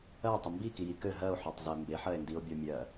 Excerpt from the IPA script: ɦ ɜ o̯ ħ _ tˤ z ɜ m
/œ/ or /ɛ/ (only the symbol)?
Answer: œ